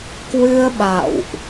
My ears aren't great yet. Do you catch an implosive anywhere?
yes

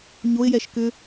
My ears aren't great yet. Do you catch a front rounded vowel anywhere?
yes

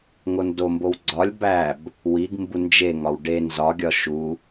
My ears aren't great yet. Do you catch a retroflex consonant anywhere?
yes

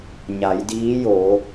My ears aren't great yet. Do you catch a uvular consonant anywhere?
no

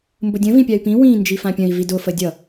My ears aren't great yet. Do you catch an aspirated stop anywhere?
no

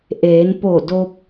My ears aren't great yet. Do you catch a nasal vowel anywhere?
no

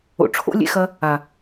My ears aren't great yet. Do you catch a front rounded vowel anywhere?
no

